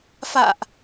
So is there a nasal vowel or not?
no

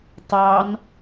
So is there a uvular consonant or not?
no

